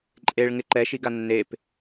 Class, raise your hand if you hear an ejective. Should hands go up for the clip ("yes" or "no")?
yes